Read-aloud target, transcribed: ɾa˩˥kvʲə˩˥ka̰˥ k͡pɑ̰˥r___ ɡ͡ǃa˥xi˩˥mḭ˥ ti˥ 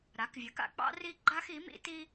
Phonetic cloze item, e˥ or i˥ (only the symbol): i˥